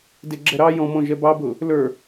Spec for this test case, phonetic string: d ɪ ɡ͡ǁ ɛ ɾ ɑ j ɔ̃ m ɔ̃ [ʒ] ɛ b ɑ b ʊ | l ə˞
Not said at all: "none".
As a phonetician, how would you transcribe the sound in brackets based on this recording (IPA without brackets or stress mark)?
ʒ